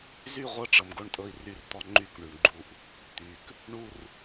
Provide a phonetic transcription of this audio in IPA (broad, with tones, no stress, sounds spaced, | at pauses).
z y˦˨ ʁʷ ɤ˦ ʈ͡ʂ ɤ˨ m ɡ o˦ ɳ tʼ ɤ˦ i̯ r y˦˨ r t̪ ɔ˦ ŋ͡ǃ y˦˨ k ɳ y˨ ɳ ɡ͡ǃ u˦ ʔ | t̪ y˨ k | ɳ u˦ r